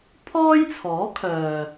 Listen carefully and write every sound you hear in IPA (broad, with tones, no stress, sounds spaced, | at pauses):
pʰ ɔː˥ j t͡sʰ ɔː˨˥ kʰ œː˨